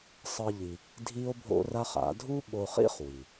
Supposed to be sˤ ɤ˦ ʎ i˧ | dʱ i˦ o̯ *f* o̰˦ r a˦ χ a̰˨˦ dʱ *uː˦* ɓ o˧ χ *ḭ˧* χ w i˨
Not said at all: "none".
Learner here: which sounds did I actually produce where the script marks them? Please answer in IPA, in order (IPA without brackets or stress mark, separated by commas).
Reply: bʱ, u˦, ḭ˦